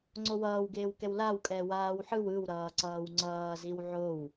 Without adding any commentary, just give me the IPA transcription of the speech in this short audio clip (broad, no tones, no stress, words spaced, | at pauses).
ŋ͡ǀowʌːwɡeːwkɛw lawkʼɛ waːwħɯw ɯwɾʌː ǀʌːwŋ͡ǀʌːziw ʕow